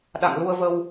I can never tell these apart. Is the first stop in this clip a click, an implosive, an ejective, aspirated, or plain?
implosive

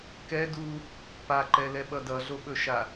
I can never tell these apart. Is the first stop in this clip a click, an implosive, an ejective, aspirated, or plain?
plain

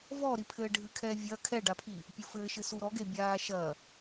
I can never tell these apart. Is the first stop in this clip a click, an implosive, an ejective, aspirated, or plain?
aspirated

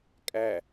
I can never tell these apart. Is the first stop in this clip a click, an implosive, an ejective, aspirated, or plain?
ejective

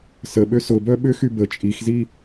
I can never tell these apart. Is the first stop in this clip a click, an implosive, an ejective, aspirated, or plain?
implosive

